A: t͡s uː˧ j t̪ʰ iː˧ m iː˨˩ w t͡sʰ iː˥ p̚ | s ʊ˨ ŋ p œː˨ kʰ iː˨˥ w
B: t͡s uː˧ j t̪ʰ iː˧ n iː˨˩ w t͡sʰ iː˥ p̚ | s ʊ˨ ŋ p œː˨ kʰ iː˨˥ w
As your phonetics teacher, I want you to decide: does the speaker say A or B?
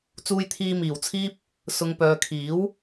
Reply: A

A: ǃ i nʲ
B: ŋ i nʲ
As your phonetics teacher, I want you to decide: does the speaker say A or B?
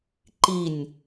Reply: A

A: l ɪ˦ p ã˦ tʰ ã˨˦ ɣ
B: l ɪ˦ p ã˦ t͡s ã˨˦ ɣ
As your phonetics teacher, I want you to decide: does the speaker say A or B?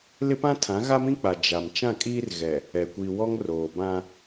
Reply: A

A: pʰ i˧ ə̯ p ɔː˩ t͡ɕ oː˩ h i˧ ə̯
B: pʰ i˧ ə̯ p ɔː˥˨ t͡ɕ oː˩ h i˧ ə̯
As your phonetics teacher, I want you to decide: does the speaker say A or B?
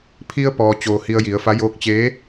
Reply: A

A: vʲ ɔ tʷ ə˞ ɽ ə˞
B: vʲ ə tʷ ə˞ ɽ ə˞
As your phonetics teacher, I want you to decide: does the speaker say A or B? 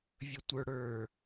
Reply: B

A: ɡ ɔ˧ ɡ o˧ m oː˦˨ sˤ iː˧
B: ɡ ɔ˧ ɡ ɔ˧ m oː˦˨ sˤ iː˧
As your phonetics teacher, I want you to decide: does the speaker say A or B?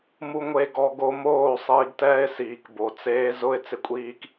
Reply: A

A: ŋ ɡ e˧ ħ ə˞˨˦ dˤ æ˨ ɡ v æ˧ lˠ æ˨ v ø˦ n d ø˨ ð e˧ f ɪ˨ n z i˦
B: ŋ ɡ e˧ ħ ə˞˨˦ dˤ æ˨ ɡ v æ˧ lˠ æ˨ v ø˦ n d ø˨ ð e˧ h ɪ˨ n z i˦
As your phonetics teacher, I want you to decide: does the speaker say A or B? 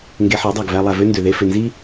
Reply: A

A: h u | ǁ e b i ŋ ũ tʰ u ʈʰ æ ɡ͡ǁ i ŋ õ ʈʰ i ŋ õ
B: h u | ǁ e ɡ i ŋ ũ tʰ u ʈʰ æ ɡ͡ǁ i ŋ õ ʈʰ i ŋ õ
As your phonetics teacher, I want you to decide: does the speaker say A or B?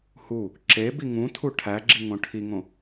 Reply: A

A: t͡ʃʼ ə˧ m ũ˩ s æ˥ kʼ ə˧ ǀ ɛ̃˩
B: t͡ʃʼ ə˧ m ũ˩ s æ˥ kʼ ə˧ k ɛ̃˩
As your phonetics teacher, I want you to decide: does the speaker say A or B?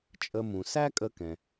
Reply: B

